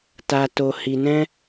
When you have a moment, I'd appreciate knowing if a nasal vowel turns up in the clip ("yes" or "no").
yes